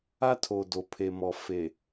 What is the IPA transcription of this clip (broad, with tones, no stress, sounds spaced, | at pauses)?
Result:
a˦ tʰ o˨ d o˨ pʰ e˨ m ɔ˨ f e˨